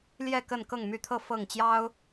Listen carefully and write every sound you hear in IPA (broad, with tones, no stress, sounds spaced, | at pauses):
l j ɛ˥˨ k ə˥˨ n k ɤ˥˨ ŋ m y˥˨ t̪ʰ ɤ˥˨ f ɤ˥˨ ŋ t͡ɕ j ɑ˦ ʊ̯